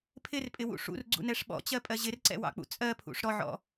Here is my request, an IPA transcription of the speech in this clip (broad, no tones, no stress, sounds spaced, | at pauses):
pʰ ɪ r pʼ ɪ w ṵ ʂ ṵ r ɡ͡ǀ ṵ n ɛ ʂ ɓ ɔ̰ t͡ɕ ɜ pʼ ɜ ʑ ɪ r ǀ ɛ̰ w ɑ̰ k͡p ṵ t͡sʼ ɜ pʰ ṵ ʂ ɾ ɔ ʕ ɔ̰